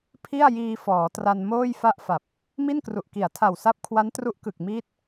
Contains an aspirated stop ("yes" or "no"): yes